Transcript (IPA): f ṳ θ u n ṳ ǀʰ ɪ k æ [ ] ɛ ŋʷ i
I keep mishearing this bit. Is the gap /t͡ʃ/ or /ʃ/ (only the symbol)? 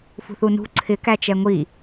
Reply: t͡ʃ